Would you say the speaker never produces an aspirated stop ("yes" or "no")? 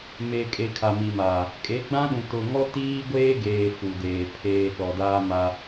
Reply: no